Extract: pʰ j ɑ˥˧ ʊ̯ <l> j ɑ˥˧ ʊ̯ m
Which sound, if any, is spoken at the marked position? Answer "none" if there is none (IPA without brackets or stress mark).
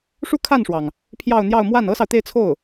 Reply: n̪